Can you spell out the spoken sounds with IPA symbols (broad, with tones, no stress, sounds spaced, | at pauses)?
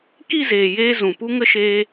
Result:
k i˦˨ z eː˨ j eː˧ z ũ˨ p u˦ ŋ ə˦ ʃ eː˦